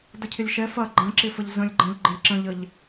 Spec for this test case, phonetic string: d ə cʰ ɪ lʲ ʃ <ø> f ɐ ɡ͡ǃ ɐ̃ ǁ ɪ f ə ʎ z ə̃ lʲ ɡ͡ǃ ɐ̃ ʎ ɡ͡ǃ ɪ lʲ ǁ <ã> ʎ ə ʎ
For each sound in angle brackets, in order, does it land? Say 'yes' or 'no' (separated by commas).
no, no